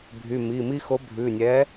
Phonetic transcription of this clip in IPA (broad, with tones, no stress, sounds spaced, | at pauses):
bʱ y˩˧˩ m i˩˧˩ m i˦ x o˨˥ bʱ ʉ˩˧˩ nʲ ɛ˨˥